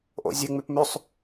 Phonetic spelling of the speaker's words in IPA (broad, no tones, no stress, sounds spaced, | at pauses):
ʔ o̰ zʲ ɨ ŋ͡m ʉ p m ʉ sˤ